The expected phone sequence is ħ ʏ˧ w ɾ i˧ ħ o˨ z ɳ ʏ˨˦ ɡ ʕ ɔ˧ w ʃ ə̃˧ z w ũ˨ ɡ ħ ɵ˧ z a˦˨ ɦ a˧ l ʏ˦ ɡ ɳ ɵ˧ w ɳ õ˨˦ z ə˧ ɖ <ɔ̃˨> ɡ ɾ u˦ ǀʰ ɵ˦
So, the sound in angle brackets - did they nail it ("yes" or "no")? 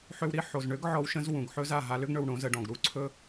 yes